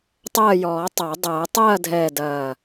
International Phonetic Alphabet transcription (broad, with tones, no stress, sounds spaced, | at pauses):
tˤ ɐː˦˨ j ɔː˨˩˦ tˤ a˨˩˦ dˤ ɐː˨˩˦ tˤ ɐː˦˨ dʱ ɛː˨˩ d ɐː˨˩